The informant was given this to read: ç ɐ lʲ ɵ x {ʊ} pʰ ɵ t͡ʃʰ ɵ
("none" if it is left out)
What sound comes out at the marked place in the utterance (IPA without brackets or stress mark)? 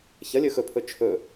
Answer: ɵ